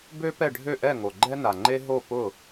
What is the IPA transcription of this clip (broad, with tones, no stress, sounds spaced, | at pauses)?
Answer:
b ø˥ p ɛ˥˩ ɖʱ ø˥˩ ʔ ɛ˥˩ ŋ o˩ ɡ͡ǃ ɛ˥ n a˩ ŋ͡ǃ e˥ ɦ o˥˩ p ʊ˥˩